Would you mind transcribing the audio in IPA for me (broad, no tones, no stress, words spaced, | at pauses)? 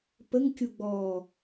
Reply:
pəŋkʲuɡ͡bɔː